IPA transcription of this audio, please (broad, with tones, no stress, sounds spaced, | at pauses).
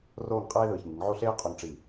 r oː˥˧ ŋ qʼ eː˥ ð ɯː˧˩ ç ŋ i˩˧ ŋ ʕ o˥˧ ɬ eː˥ qʼ o˧ ŋ ʈ͡ʂ i˧˩